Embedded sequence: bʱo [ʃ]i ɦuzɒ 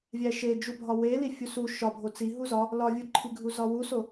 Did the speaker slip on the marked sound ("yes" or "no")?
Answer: yes